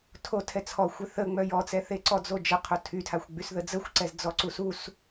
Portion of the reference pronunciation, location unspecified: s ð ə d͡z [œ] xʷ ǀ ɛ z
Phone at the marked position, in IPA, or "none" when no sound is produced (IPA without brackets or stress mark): ə